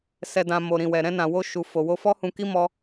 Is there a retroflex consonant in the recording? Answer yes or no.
no